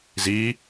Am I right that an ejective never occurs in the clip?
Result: yes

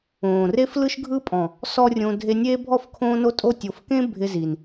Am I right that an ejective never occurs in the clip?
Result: no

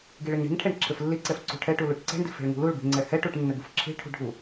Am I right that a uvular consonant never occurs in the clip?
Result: yes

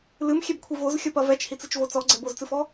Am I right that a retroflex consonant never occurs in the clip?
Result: yes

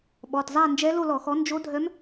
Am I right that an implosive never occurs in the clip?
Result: no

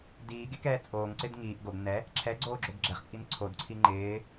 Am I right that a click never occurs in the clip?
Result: no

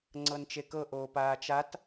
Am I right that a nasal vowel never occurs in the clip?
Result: yes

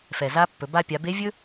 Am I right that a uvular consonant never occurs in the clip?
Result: yes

